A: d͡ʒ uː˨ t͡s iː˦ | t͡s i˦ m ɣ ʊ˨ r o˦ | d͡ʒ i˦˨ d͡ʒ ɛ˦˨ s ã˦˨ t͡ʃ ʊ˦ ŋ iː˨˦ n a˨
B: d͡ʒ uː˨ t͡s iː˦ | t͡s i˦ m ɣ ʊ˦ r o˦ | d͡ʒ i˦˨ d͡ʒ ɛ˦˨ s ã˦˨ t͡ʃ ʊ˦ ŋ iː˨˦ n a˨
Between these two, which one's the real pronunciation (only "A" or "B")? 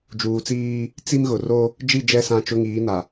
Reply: A